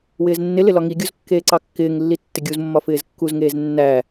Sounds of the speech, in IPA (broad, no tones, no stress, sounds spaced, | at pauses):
w ɪː z nː ɪ l ɪ l ɒ ŋ i ɡʲ u z kː eː ǀ ɑ kː ɪː ŋ lː i tː ɪ ɡʲ u z mː ɒ f ɪː z kː u z ŋ eː z nː æ